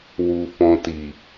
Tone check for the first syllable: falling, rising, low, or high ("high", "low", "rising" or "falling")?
low